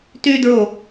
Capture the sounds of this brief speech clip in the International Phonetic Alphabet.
t y d ɹ o

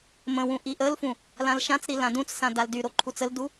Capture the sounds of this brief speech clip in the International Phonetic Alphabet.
m ə̃ w ũ ʔ i ʔ ə l f ũ | l ã l ʃ ã t͡s ɾ i l ã d ũ t͡s s ã d a l d y ɾ o ǃʰ u t͡s ə l d u

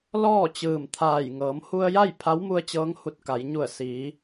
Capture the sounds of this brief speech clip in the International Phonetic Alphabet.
l ɔː˥˨ t͡ɕ ɯː˧˩ m t̪ʰ aː˧˩ j ŋ ɤː˩˧ m h u˧ ə̯ j a˥˨ j pʰ a˧˥ w m u˧ ə̯ t͡ɕ ɤː˧˥ ŋ h u˧˩ t̚ k a˩˧ j ɲ u˧˩ ə̯ s iː˩˧

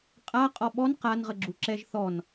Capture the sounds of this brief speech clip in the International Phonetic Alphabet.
qʼ a qʼ ɔ ɓ ɔ n q a n ʁ ə ɡ͡ǁ u ǁ ɛ ʒ θ ɔ n

